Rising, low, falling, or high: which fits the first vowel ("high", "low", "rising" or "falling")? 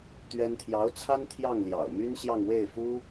high